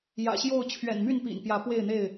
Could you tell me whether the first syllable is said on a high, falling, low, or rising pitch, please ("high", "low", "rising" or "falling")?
low